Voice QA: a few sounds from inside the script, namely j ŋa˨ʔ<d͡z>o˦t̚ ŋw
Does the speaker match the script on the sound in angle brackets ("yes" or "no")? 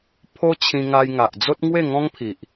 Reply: yes